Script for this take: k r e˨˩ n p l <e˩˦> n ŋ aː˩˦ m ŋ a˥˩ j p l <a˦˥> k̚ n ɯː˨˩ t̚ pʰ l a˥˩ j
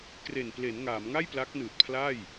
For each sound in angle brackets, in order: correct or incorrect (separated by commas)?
correct, correct